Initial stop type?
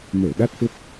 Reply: implosive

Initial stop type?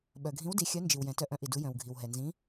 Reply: implosive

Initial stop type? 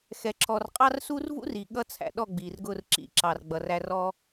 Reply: click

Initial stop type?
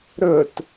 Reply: plain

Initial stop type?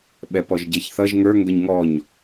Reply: implosive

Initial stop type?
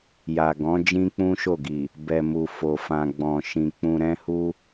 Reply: plain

